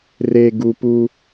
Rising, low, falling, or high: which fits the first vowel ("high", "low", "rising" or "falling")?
low